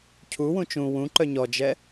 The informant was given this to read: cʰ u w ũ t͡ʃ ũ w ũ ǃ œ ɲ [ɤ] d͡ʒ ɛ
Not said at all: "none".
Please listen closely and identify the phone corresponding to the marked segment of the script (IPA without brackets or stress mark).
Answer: ɔ